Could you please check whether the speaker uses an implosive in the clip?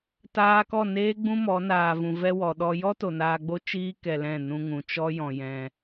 yes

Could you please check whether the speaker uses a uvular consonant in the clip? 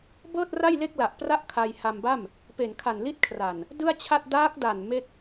no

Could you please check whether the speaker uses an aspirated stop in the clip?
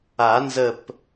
no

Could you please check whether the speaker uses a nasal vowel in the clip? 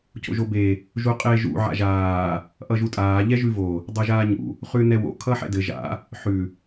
no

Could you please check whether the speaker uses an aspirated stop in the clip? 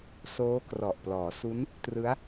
no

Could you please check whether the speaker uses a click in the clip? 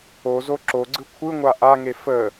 yes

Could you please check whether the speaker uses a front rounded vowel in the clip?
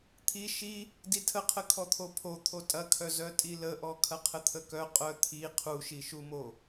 yes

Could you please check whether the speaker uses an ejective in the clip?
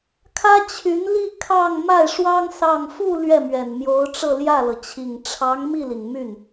no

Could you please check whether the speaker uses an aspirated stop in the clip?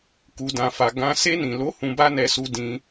no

